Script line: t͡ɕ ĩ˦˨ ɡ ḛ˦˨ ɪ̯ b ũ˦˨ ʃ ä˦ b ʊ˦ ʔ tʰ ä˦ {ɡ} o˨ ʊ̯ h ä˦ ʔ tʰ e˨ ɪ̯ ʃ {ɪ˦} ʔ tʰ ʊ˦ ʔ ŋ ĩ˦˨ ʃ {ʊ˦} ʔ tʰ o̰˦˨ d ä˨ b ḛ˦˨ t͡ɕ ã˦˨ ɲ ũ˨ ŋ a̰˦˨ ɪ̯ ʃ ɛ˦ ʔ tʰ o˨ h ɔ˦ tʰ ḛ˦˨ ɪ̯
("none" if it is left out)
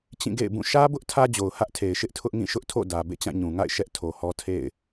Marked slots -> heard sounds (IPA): d͡ʑ, ɪ˦, ʊ˦

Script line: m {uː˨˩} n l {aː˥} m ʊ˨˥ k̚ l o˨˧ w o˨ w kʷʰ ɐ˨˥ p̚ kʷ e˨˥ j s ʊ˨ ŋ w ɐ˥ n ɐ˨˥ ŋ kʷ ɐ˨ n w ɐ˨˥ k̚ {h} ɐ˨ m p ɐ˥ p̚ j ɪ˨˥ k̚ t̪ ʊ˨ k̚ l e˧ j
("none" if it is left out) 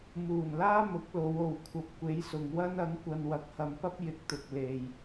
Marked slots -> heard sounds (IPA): uː˨˩, aː˥, h

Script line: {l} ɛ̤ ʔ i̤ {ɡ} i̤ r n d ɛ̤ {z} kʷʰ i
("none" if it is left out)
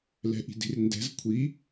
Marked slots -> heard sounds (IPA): l, d, z

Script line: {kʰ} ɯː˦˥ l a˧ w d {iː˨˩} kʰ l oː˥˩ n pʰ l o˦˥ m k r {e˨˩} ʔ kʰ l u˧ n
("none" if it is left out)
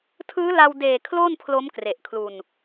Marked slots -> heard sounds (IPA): tʰ, eː˨˩, e˨˩

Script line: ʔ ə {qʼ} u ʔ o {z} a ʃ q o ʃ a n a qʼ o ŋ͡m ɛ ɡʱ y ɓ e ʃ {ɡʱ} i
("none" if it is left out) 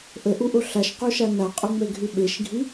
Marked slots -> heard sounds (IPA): ʔ, ɬ, ɡʱ

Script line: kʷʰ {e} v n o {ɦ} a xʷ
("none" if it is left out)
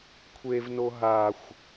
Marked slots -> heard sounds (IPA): e, ɦ

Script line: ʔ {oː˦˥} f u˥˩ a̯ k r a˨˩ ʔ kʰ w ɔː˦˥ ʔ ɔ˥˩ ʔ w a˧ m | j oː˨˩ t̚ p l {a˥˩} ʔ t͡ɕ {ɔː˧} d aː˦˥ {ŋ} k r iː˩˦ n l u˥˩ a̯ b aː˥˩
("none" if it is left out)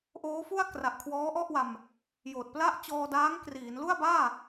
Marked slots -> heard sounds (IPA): oː˦˥, a˥˩, ɔː˧, ŋ

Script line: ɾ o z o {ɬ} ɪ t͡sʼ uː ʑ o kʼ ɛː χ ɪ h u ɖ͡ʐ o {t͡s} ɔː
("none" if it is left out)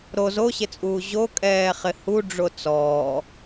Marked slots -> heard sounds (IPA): ɕ, t͡s

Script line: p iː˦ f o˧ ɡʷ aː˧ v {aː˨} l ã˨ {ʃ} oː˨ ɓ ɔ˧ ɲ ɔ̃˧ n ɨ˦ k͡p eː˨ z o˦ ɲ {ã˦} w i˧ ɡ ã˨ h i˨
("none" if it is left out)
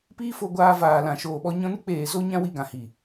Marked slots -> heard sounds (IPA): aː˨, ʃ, ã˦

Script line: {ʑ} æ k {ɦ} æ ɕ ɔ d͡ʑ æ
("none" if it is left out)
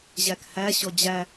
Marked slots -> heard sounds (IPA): ʑ, h

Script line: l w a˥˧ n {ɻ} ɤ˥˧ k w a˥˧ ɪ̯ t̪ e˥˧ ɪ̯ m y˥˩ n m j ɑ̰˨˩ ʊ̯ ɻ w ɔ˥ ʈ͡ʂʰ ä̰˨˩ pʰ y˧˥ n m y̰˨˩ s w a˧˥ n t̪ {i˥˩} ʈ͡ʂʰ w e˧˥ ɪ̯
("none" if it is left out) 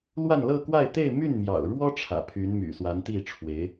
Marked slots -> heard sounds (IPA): l, i˥˩

